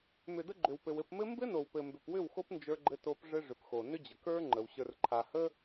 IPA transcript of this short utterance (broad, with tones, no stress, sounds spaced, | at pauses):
m ʏ˨ d ə˧ ɡ͡ǃ ʏ˨ w p ɘ˨ w ɘ˦˨ p m ɘ˦ m b ɘ˦ n o˨ w p ɘ˨ m b ʏ˨ p w ʏ˦˨ w x o˦ p n d͡ʒ ə˞˧ ɡ͡ǃ ɘ˧ t o˧ p ʐ ɘ˦ ʐ ʏ˨ p x o˨ n ʏ˦ d͡ʑ ə˨ k ə˞˦ ŋ͡ǃ ə˨ w ɕ ə˞˧ r ǃʰ a˨ h ə˦